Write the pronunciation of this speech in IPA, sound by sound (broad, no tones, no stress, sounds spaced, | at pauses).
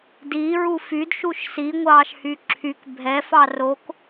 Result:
d i ɹ u f y d ʃ u ʃ s i ŋʷ ɑː ʃ h y ǁʰ y k bʱ ɛ f ɑ r o k